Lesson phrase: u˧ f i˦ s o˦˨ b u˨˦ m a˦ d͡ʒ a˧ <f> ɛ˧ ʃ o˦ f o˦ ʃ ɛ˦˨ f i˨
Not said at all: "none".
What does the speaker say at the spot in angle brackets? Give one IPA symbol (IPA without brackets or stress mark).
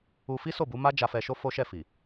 f